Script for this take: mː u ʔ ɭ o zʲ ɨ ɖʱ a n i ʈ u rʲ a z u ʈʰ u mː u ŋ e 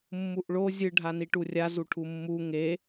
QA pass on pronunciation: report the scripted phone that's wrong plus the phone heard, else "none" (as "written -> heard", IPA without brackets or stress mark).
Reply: none